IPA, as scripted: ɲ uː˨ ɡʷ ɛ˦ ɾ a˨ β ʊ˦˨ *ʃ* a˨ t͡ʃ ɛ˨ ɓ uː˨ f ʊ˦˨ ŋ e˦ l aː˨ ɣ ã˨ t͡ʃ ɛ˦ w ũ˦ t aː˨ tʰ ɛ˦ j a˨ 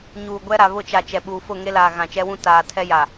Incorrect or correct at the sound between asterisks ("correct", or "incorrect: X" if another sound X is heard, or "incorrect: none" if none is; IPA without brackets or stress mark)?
incorrect: t͡ʃ